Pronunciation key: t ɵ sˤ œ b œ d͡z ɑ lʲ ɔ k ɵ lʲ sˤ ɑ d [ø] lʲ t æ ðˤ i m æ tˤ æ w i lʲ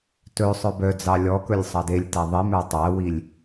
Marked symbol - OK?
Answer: no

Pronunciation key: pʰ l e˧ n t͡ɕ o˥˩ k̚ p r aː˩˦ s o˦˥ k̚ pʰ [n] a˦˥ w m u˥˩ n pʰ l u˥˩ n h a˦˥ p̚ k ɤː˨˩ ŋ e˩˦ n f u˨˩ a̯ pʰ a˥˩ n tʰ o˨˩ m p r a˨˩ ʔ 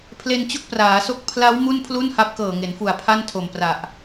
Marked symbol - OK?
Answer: no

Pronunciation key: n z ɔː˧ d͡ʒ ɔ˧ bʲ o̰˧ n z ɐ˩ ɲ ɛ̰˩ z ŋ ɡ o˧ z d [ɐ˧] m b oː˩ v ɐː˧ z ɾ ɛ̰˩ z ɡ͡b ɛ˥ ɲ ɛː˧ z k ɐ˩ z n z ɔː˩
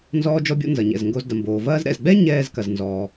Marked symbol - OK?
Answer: no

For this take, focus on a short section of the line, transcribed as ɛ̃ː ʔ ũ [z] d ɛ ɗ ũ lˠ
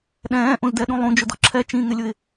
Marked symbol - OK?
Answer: yes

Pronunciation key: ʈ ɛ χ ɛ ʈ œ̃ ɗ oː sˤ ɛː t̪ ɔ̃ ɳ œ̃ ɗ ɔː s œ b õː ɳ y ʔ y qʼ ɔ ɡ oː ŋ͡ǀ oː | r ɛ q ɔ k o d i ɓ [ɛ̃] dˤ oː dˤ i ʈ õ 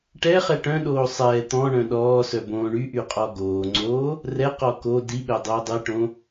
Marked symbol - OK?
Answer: no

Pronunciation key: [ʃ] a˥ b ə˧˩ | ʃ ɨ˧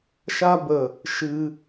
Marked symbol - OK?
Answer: yes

